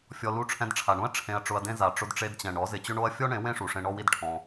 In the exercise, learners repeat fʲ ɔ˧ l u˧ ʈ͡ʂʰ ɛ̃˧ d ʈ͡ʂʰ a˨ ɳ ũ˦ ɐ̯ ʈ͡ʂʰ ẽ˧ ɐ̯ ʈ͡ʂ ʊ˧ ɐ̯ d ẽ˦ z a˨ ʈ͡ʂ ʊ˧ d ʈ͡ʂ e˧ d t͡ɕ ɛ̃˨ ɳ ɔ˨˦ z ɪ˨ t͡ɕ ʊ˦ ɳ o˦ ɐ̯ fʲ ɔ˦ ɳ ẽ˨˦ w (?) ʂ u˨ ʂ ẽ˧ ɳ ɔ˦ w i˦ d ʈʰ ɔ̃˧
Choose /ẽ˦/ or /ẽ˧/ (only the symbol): ẽ˦